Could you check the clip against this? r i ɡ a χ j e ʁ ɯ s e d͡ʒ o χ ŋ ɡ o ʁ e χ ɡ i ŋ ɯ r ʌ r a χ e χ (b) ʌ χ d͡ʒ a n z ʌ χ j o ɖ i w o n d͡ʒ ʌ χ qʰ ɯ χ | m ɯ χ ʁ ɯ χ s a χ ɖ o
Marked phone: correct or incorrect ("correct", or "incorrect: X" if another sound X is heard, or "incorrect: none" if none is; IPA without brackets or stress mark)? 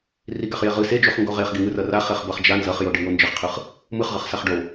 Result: correct